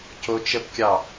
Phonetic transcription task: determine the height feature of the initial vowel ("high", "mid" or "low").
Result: mid